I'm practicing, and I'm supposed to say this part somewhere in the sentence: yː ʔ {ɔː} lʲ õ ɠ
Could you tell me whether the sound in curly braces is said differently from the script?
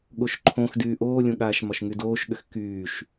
yes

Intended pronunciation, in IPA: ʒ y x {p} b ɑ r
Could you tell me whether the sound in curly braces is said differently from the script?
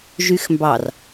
yes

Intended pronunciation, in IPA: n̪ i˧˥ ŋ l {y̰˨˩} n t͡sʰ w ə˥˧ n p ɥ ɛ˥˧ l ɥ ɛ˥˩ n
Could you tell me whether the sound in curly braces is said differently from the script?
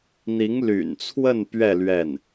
no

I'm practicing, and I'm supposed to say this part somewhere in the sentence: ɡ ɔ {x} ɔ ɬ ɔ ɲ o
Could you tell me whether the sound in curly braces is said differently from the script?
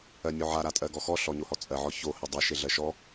no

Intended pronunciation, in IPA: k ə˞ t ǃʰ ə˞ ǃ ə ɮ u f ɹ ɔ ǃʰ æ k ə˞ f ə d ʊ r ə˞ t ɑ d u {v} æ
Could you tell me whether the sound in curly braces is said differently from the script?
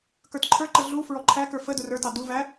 no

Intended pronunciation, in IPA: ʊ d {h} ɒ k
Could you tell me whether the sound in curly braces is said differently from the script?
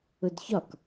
yes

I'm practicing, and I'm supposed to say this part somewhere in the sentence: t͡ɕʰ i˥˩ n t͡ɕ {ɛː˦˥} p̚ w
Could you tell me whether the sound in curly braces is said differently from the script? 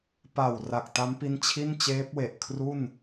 yes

